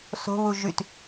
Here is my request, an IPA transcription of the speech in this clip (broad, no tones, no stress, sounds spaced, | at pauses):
s o̤ β u ʒ y t